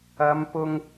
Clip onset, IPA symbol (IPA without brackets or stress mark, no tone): ɐ